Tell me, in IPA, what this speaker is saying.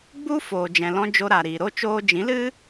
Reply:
ɡ͡b u˦ f oː˨ d͡ʒ ɛ̃˨ l ɔ̃˧ d͡ʒ o˧ ɾ a˨ ɾ iː˨ ɾ o˦ t͡ʃ oː˧ d͡ʒ ĩ˨˦ l ɨ˦

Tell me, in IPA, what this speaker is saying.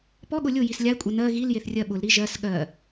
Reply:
p ɔ ɠ ʊ lʲ ʊ j i s lʲ a ɪ̯ kʷʼ ə n ɜ ɣ i l j e θ rʲ ɜ ɓ ʊ l ɾ i ʒ ɜ s ɠ ɜ

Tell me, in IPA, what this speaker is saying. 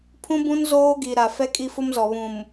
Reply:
pʰ ũ˦ b ũ˦ n z oː˦ ɡ i˨ ɾ a˨ f ɛ˦ kʼ i˦ f ʊ˦ m z ɔ˨ β ũ˨ m

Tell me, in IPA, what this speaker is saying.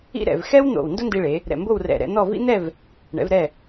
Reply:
ḭ˥ ɾ ɛ̰˩˧ v x ɛ˥ w n̪ o̰˧˩ w n d o˥ n d i˧ ɭ e˩˧ | ɾ ɛ̰˧˩ m b o˥˧ w r ɛ̰˧˩ ɾ ɛ̰˧ n̪ ɔ˥˧ v ḭ˥ n̪ ɛ˥˧ v | ɳ ɛ̰˩˧ v ɾ ɛ˧˩

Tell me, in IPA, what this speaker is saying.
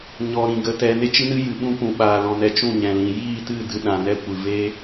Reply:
ɲ ɔ˨ ɾ ĩ˨ ɡ ə˧ t ɛ˧ n e˦ t͡ʃ ɨ˦ n ɨ˦ j ɨ˨ ɓ ũ˦ p ũ˨ ɓ aː˨ l ɔ̃˨ n ɛ˨ t͡ʃ ũ˦˨ ɲ ɛ̃˨ l ĩ˨ j iː˦˨ t ɨ˦˨ d ɨ˧ ɗ ã˨ n ɛ˦ kʷ ɨ˨ v eː˦

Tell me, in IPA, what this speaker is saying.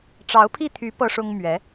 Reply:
ʈ͡ʂ ɑ˧˥ ʊ̯ pʰ i˥˩ t̪ʰ y˧˥ p ɤ˥ ʂ ʊ˥ ŋ m ɥ ɛ˧˥

